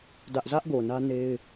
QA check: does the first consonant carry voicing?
yes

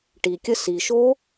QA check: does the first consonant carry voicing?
no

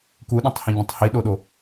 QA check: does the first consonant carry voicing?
no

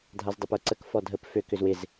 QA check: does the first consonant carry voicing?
yes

